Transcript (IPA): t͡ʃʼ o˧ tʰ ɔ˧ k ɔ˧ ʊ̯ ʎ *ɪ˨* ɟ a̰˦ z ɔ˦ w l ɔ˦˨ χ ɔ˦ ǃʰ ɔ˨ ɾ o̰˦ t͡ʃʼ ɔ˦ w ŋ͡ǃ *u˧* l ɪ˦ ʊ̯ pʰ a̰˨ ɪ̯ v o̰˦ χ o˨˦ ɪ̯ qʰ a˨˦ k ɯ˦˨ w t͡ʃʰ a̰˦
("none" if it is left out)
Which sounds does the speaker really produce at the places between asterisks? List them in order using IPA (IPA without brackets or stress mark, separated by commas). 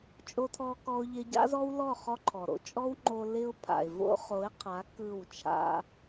ɪ˧, o˧